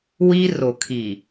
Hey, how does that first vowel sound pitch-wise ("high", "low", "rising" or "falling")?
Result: high